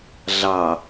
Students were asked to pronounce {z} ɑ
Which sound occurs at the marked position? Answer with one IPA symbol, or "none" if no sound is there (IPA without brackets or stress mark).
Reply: ɮ